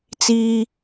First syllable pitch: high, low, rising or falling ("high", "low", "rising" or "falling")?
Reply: high